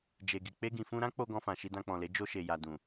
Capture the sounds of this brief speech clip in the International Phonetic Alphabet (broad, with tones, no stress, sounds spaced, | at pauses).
d͡ʒ e˨ ɡ i˨ k͡p e˧ ɡ ĩ˨ f ũ˧ ɾ ã˦ k͡p o˧ ɡ ɔ̃˧ f ã˨ ʃ i˧ d ã˧ k͡p ɔ̃˨ l e˨˦ d͡ʒ o˧ ʃ e˨ j a˨ d ũ˨